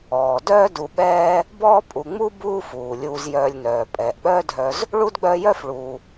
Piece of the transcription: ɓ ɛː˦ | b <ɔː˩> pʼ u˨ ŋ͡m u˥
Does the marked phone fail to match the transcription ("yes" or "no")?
yes